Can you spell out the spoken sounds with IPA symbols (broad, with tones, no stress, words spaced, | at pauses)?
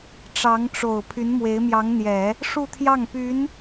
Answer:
ʈ͡ʂɑ˧˥ŋʈ͡ʂo˨˩ʊ̯ pʰy˧˥nmwe˧˥ɪ̯mjɑ˧˥ŋn̪jɛ˨˩˦ | ʂu˥˧t̪ʰjɑ˥˩ŋpy˧˥n